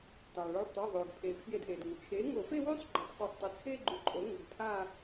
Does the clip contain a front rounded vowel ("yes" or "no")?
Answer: yes